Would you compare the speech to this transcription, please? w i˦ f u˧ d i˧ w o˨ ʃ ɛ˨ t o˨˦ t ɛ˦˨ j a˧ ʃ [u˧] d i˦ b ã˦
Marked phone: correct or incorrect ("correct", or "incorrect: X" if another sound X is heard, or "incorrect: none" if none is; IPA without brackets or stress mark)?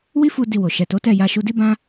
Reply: correct